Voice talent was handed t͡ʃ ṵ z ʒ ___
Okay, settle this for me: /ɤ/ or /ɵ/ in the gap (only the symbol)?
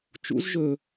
ɵ